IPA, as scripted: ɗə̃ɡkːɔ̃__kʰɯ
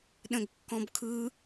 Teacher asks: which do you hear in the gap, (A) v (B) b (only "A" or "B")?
B